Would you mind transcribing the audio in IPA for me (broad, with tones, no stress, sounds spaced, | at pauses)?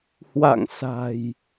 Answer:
h w a̰˧˨ ŋ s a̤˨˩ j